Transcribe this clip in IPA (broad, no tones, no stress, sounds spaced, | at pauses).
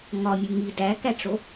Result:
ŋ ɒ mʲ u ŋ i d æ k æ ʈ͡ʂ o